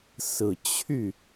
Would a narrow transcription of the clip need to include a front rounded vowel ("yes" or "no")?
yes